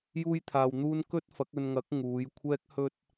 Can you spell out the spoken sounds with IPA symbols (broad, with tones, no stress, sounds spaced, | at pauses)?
j uː˥ j t̪ʰ aː˨ w n̪ uː˥ n k ɵ˥ t̚ f ɐ˨˥ k̚ ɵ˧ n ŋ ɐ˨˥ k̚ ŋ uː˨˧ j kʷʰ ɛː˥ k̚ h ɵ˧ t̚